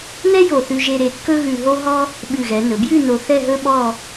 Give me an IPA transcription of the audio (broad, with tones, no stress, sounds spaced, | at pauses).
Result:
n ɛ˥ j o˧˩ θ ʉ˧ ʒ e˧ ɾ e˧ kː ɵ˥ ɣ ʉ˧ ɦ o˥ ɦ ɔ˥ | ɓ ʉ˧˩ ɣ ɛ˩˧ n ɵ˩˧ b j ʉ˥˧ n o˧ θ ɛ˥˧ ɦ ɵ˥ ɓ ɔ˥˧